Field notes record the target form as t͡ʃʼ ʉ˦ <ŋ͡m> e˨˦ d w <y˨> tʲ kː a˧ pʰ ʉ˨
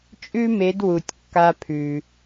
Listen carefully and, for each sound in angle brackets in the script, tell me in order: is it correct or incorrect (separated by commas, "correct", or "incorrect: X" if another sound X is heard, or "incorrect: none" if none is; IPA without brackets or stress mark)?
incorrect: m, incorrect: u˨